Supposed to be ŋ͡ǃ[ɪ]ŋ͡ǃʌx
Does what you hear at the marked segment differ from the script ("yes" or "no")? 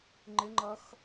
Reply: no